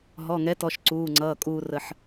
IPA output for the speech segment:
ɦɔ˩˧˩ŋɛ˨˥tɔ˩˧˩ʃ ǀuː˩˧˩ŋ͡ǀʌː˩˧˩kʼuː˧ rə˧ħ

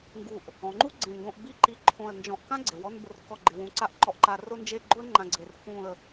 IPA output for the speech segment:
ŋɡu˧˩ʔ | ɔ̃˩˧ŋ͡ǃu˥ɡ͡ǀẽ˧˩ŋɡõ˧ʔ bi˥˧ǃi˧ ǃʰõ˧˩ə̯ nd͡ʒɔ̃˧˩ʔkã˥ɡ͡ǀe˩˧w ɔ˥˧nbʊ˧r kɔ˥˧ɡ͡ǃɪ˧wũ˧ǀa˥ʔ ǃɔ˧ʔǃa˧ rʊ˥nd͡ʒe˥˧ ɡ͡ǃʊ˥ə̯ŋ͡ǃã˧ ɡ͡ǀe˧r kũ˥˧ə̯

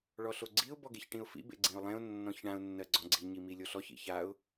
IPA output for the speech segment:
ɭɔɬoɡ͡ǀiʊ̯ bɔɡeçʈĩʊ̯fḭ bḛɡ͡ǀĩʊ̯lˠẽʊ̯ nːɔ̃çɳãʊ̯ nːɜɡ͡ǀɔ̃ɡ͡ǀi ɲimilʲoɬɔç ḭçaʊ̯

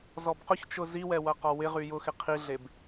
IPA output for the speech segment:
zɔbqʊçt͡ʃʊ ziwɛ wɐqɔwɪʁy jʊxɪ qʰiɮeb

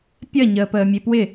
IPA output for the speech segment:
pʲɐ ɲəːpəːmʲepwɪ

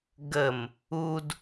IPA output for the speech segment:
ɡəm | ud

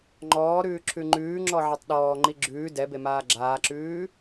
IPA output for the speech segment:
ŋ͡ǃɔːɾʉː ǁʰʉŋ͡ǃʉːŋ͡ǁɔ ʕɛtˤɗɔːŋ͡ǃi ɡ͡ǁʉː dɛbe maːɡ͡ǁaːǁʉː

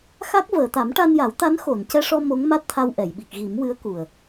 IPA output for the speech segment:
xa˦˥k̚vəː˨˩˨ t̪a˨˩˦mʈa˧nja˨˩˦wt̪a˧˥n xo˨˩˨ncɛ˧ʂɔ˧ mo˧˥ŋma˦˥t̚t̪ʰa˧wʔɛ˨˩˨j ɓi˨˩k̚ɣi˨˩˦mwɨ˧˥ə̯ ku˨˩ə̯

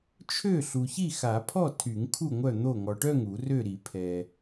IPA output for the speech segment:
t͡ʃʰø˥˨ ɬu˨çi˥˨xa˨˩˦pʰɔ˥˨ tʰy˨˩˦ŋ kʰu˥˨ŋʷœ˥˨n̪o˥˨ ŋɔ˨ʈœ˥˨ŋ u˨˩˦rø˥˨ɾi˨˩˦ pʰɛ˨

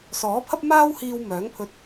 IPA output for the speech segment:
sɔː˨˥pʰɐ˥p̚ maː˥whiː˧w mœː˨˥ŋpʰɵ˧t̚

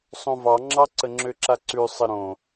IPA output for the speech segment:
sˤõvɑŋ͡ǁɑ ǀəŋ͡ǁøǁaǀʉ sˤəɾõ

